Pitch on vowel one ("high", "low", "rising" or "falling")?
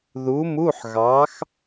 rising